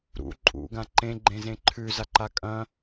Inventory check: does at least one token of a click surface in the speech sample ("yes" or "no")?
yes